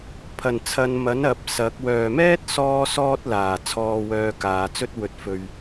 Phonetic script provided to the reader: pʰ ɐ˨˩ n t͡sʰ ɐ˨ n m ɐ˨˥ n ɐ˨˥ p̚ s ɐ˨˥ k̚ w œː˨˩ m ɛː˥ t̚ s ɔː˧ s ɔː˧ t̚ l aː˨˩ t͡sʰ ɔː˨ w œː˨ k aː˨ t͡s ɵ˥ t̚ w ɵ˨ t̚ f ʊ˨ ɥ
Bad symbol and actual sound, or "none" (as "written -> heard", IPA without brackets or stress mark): ʊ˨ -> ɵ˨